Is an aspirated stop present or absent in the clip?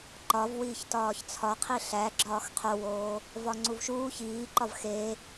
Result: present